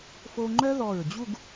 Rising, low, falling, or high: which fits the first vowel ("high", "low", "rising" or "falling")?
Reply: high